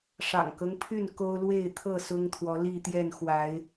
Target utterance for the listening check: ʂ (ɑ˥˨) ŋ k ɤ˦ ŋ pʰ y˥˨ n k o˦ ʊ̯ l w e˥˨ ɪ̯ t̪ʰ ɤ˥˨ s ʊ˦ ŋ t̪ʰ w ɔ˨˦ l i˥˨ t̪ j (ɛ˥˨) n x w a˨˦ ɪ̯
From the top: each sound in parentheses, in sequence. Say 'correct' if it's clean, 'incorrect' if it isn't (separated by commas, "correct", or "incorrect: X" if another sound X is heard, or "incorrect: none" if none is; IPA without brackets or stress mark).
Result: incorrect: ɑ̰˨˩, correct